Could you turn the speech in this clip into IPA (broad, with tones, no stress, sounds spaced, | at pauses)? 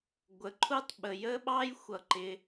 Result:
ɡʷ ə˩ ǃʰ u˥ tˤ ɓ ə˩ j ə˥ ɓ ɑ˥ j xʷ ʌ˩ ǃ ɪ˩